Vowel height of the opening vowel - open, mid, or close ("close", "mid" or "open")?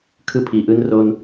close